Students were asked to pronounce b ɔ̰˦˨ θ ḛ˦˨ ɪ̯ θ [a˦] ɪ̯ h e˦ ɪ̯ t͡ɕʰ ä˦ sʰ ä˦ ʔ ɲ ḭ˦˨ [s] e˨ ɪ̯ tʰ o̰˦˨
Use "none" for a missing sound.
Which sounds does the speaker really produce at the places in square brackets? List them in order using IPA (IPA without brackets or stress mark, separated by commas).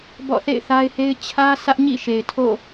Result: a˦, ʃ